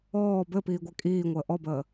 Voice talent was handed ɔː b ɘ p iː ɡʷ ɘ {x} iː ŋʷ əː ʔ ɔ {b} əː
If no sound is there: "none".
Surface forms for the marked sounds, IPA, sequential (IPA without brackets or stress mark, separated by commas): kʼ, b